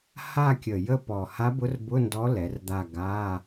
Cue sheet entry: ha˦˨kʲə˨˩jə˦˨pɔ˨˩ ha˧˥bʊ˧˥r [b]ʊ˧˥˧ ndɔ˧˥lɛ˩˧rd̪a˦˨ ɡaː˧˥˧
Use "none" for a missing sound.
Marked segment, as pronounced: b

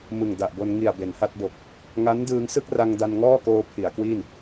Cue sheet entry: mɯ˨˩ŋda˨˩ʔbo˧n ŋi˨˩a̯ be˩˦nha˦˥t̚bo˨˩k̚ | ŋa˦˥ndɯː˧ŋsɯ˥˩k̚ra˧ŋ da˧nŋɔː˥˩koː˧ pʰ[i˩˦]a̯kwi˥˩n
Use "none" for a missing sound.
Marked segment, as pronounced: i˩˦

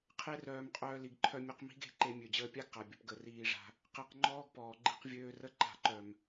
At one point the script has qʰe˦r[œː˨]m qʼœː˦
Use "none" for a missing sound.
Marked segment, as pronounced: œː˧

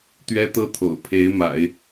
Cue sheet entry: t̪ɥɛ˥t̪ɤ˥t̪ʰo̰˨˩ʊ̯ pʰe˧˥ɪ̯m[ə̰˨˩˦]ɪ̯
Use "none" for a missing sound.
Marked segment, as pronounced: a̰˨˩˦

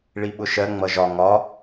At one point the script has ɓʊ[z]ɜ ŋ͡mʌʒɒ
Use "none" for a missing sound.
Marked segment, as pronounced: ʃ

